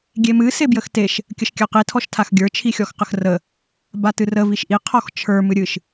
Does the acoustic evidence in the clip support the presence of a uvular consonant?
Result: yes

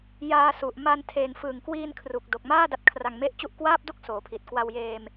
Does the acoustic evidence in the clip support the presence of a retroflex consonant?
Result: no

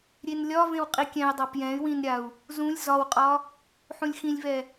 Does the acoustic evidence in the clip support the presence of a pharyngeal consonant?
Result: yes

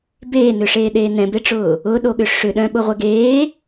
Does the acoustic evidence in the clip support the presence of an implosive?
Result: yes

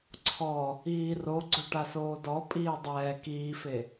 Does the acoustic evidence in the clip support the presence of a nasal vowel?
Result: no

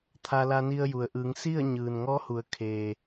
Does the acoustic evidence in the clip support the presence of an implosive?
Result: no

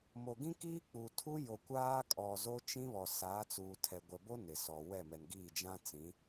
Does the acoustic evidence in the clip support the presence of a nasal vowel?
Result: yes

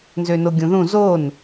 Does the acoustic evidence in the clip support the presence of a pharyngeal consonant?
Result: no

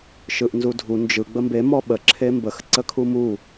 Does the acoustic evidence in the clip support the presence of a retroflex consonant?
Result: no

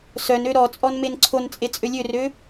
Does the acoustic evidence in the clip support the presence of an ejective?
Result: yes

